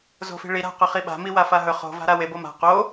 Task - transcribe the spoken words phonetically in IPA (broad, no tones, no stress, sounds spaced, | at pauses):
z o̤ f i̤ ɭ i ɾ a̤ q ɵ χ i ɓ a̤ m i w a f a ɦ ɵ χ o̤ v a̤ ɾ a w e b o m a̤ q o